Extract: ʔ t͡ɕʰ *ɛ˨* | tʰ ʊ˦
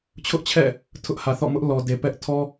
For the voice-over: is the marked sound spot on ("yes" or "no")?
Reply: no